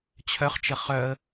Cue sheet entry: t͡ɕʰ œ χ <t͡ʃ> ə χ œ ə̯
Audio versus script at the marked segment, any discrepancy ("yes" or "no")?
no